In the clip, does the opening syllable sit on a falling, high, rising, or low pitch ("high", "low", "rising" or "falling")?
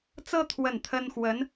high